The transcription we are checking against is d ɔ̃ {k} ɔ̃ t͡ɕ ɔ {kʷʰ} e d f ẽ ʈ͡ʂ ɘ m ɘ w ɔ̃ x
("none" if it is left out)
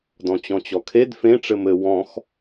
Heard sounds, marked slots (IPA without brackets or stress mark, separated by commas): t͡ɕ, kʰ